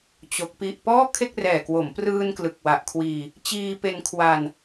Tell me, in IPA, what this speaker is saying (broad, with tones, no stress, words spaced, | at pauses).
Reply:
t͡ɕo˦˥k̚pi˥˩ʔ pɔː˥˩kʰe˥˩k̚rɛː˨˩kwo˩˦m prɯː˧n klɯ˨˩k̚wa˨˩ʔkʰwiː˧ | t͡ɕiː˧pe˧nkʰwa˧n